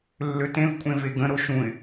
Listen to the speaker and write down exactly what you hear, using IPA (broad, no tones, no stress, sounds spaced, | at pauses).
lː ø t ẽ v kʷʼ ẽ v e ɡ ə̃ ɾ o ʃ ũ ɪ̯